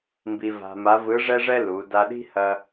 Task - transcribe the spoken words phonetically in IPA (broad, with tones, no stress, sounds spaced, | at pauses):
m b i˧ v a̤˧ m a˧˥ v ɯ˧˥ ʐ ɛ˥ ʐ ɛ˥ l u˩˧ d a˧ ɗ i̤˥ h ɐ˥